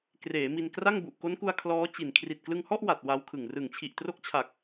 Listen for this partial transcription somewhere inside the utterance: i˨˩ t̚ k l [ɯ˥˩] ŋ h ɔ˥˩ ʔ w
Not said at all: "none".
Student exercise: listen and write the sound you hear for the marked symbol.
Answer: ɯ˧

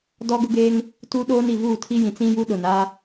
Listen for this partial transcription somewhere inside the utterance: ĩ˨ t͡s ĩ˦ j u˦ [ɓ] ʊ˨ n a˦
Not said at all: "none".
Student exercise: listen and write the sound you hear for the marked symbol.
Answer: ɗ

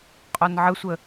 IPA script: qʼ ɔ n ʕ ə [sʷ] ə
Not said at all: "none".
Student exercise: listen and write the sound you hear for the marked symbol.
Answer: sʷ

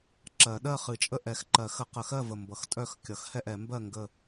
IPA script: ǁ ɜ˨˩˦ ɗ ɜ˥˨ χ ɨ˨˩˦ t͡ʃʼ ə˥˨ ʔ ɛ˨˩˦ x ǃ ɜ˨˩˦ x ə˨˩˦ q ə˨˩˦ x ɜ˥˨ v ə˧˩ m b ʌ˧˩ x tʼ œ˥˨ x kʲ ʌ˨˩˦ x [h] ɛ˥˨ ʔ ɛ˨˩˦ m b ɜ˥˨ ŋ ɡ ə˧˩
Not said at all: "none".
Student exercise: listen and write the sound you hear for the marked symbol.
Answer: h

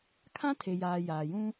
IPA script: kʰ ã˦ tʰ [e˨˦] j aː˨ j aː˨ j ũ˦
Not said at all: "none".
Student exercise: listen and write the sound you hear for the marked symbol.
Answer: e˨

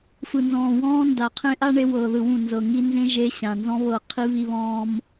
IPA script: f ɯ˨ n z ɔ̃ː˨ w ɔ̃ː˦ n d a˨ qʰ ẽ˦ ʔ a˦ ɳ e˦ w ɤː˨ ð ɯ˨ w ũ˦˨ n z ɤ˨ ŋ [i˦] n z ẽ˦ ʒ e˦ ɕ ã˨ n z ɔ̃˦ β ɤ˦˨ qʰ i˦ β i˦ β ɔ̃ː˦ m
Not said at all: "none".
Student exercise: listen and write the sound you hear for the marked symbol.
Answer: i˦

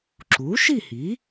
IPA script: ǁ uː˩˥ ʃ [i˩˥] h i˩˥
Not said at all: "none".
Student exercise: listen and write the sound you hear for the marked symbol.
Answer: i˥˨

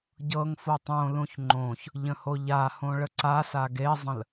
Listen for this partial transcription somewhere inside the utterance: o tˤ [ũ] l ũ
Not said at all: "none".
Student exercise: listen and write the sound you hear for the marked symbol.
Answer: õ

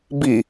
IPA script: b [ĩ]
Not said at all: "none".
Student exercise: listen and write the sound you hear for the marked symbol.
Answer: i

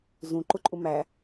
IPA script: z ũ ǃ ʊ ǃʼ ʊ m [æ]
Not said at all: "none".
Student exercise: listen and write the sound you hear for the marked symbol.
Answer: æ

